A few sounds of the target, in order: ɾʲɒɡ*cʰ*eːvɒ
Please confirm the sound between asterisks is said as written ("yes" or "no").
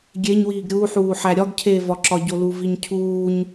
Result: yes